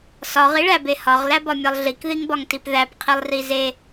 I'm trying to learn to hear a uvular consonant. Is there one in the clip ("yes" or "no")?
yes